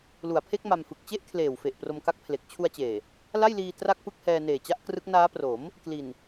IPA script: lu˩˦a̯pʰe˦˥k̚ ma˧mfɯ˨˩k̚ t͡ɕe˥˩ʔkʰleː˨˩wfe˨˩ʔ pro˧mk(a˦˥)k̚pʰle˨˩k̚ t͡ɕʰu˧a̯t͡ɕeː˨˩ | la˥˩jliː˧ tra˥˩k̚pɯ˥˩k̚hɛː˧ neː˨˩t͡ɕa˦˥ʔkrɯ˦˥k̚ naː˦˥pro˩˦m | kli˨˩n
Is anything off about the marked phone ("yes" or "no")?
no